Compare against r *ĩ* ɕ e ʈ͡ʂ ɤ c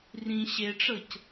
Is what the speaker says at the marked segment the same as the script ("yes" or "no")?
yes